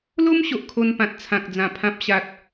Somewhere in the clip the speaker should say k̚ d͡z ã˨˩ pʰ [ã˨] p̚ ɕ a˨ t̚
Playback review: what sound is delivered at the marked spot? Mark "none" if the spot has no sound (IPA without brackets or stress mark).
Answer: ã˨